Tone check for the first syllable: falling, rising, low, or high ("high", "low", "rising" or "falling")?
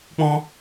high